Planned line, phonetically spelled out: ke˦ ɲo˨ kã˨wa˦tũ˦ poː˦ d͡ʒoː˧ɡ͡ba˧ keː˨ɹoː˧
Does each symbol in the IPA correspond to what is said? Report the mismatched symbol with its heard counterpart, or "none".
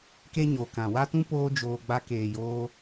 ɹ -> j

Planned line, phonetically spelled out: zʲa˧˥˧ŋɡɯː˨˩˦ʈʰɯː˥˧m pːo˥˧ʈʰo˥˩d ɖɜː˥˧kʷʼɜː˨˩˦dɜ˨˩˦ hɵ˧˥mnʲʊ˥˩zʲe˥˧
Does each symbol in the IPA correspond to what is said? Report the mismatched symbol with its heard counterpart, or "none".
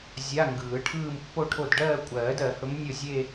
none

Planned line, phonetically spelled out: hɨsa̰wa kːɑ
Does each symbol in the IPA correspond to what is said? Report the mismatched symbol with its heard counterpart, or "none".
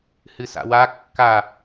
ɑ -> a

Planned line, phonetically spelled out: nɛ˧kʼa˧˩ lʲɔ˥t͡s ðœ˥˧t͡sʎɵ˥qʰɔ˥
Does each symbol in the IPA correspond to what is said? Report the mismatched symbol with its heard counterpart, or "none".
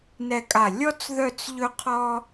none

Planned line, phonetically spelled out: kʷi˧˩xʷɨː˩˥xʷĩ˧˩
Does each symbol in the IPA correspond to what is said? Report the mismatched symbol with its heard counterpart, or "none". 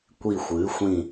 none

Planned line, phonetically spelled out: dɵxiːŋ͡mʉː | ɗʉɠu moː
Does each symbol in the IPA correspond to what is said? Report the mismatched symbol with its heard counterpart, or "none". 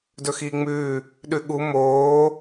none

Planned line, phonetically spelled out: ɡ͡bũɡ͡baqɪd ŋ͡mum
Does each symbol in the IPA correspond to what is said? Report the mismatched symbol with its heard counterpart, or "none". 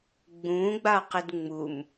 none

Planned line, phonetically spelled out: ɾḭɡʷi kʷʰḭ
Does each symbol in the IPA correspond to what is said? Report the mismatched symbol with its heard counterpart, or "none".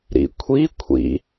ɡʷ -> kʷʰ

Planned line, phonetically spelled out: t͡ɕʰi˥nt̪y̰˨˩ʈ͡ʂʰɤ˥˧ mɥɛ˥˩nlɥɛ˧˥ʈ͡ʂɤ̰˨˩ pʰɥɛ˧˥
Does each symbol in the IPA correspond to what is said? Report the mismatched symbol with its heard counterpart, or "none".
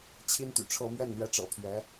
none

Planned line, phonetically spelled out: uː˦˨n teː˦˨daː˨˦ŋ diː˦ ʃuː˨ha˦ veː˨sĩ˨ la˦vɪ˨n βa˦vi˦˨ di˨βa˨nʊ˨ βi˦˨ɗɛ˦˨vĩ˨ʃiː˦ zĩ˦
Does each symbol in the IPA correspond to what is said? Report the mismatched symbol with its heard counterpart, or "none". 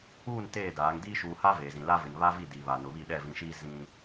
s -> z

